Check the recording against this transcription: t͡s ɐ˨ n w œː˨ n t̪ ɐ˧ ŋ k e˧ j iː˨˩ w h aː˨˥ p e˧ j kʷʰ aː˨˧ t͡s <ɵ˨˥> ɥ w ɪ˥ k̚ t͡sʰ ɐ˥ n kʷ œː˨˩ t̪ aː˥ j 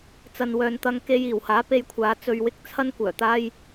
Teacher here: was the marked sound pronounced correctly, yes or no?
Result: no